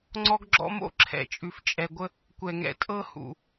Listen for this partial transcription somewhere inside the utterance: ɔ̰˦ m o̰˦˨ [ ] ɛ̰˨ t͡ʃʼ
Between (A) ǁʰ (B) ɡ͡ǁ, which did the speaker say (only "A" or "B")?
A